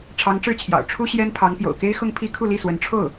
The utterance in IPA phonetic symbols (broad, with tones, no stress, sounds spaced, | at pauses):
ʈ͡ʂʰ ɑ˧˥ ŋ ʈ͡ʂ ɻ̩˥˩ t͡ɕʰ j ɑ̰˨˩ ʊ̯ ʈ͡ʂʰ u˥ ɕ j ɛ˥ n pʰ ɑ˧˥ ŋ p j o̰˨˩ ʊ̯ k e˥ ɪ̯ x ʊ˥˩ ŋ pʰ i˥ kʰ u˥˧ l i˥˩ s w ə˧˥ n ʈ͡ʂʰ o˥˩ ʊ̯